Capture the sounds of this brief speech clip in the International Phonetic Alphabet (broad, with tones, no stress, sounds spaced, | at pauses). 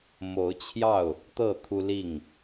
m o˨˦ ʊ̯ t͡ɕʰ j ɑ˥˨ ʊ̯ | t̪ ɤ˥˨ t̪ʰ u˦ l i˥˨ ŋ